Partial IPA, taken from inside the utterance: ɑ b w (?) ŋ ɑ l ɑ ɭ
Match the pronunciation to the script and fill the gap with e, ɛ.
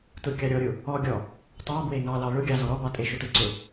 e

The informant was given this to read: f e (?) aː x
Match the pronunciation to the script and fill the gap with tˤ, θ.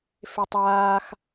tˤ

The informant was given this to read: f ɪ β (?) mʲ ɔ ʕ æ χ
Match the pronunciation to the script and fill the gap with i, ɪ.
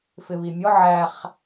i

